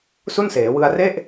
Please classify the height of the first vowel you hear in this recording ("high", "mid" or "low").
high